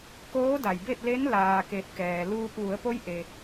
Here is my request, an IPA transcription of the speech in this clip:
k oː˧˥ d a˩ j b e˥˨ t̚ l e˧˥ n l aː˩ k e˧˩ t̚ k ɛː˩ l uː˧ p̚ ʋ u˩˧ ə̯ p o˧˥ j ʔ e˩

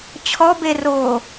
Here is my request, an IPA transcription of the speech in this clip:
t͡ɕʰ ɔ b e r oː

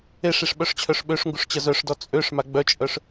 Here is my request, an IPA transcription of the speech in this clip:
e ʂ i ʂ ɓ œ ʂ t͡ɕʰ œ ʂ ɓ ø ʂ ŋ ɡ u ʂ t͡ɕ ə z œ ʂ d ɔ t͡sʼ ø ʂ m a ɡ͡b œ t͡ʃʼ œ ʂ

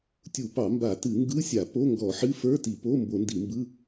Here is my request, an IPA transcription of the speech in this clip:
tʲ u˧˩˧ p ɑ˧˩˧ m b a˧˩˧ t ɨ˧˩˧ ŋ ɡ ɯ˧˥˧ sʲ a˧˩˧ p o˧˥˧ ŋ ɡ ɔ˧˩˧ ħ ɨ˧˥˧ f ə˞˧˥˧ t i˧˩˧ p o˧˥˧ m b o˧˩˧ n d i˧˩˧ m b ɯ˧˥˧

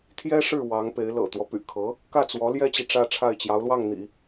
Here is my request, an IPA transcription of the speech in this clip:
t̪ʰ j ɛ˥ ʂ ɻ̩˥˩ w ɑ˧˥ ŋ p e˧˥ ɪ̯ l ɤ̰˨˩ t̪ w ɔ˦ p y̰˨˩ kʰ ɤ˧˥ | k ä˥˩ t͡s w ɔ˧˥ l j ɛ˥ t͡ɕ i˨ ʈ͡ʂ ä˥˧ ʈ͡ʂʰ a˥˩ ɪ̯ t͡ɕ j ɑ˧˥ ʊ̯ l w ɑ˥˩ ŋ n̪ ḭ˨˩˦

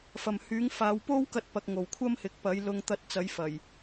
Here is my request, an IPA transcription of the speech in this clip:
f ɐ˨ m h yː˨˥ ŋ f aː˨˧ w p o˥ w k ɐ˥ t̚ p ɐ˧ k̚ ŋ o˨ w kʷʰ ɐ˥ m h ɪ˨˥ k̚ p ɐ˨˥ j l ʊ˧ ŋ t̪ ɐ˧ t̚ t͡s ɐ˨˥ j f ɐ˨˩ j

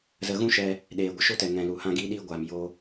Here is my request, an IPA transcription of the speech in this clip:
z ə˧ ɣ ũ˦ ʃ ɛ˧ | ɗ eː˨ ɡʷ ə˧ ʃ o˦ t ɛ˨ ŋ ɛ̃˨ l u˨ h ã˧ ɡ iː˧ ɗ iː˧ ɡʷ aː˨ m j o˦

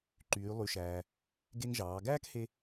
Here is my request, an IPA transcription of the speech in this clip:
ǃ yː˩˧ lˠ y˩˧ ʃ æː˩ | ɡ e˧ ŋ ʒ ɑː˩˧ ɡ æː˥ k h e˧

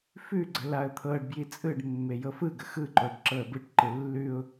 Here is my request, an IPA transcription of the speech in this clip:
f ʉ ɡ͡ǀ ə l a ə̯ t̪ʰ ɤ ɖ b j i t͡sʼ ɯ ɖ mː e j ɤ f ɯ ɡ ə x ɯ ǃ o ɖ ǁ ɤ ə̯ b ɯ ʈ ǃ ɯ lː ʉ ʊ̯

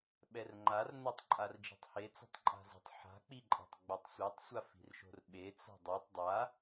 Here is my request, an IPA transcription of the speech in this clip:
ɓ ɛ r ŋ͡ǃ a r n o tˤ ǃʼ a r d͡ʒ i̤ tˤ h e t͡s a̤ tˤ ǃʼ a̤ z i̤ tˤ ħ a̤ k͡p i ǃʼ ɛ̤ tˤ ɡ͡b a tˤ sʷ e tˤ sʷ a f i̤ r ʃ o̤ r ɓ e t͡s a̤ dˤ o tˤ dˤ a

